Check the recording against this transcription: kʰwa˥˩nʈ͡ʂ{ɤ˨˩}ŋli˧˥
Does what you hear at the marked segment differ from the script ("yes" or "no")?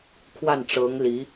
yes